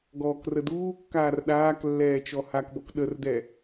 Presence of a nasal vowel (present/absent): absent